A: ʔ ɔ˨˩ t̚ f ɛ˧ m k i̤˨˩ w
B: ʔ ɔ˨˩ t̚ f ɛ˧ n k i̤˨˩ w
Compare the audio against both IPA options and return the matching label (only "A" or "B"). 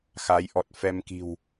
A